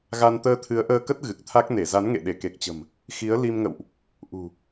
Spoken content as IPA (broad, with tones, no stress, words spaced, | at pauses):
ɣa˧n t̪əː˧t̪ʰɨ˨˦ə̯ʔəː˧kə˦˥t̚ ɣɨ˨˩k̚t̪ʰa˦˥k̚ne˧˩ za˨˦nŋḛ˧˨ɗe˧˩ ke˨˩k̚t͡ɕə̤˨˩m | xi˨˦ə̯ li˧mŋə̰˧˨wʔ | ʔṳ˨˩